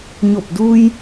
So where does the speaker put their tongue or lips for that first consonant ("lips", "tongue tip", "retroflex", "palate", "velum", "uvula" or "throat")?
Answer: palate